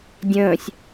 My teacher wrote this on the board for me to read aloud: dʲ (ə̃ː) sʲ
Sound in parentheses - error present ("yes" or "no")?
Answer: no